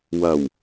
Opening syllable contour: low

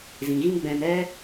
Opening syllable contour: low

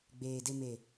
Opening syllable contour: low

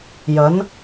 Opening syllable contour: rising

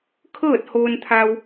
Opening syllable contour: falling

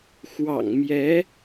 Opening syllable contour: low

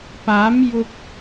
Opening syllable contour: rising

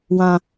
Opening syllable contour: low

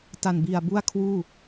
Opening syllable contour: low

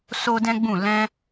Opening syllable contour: high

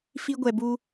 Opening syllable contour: high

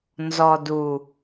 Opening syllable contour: low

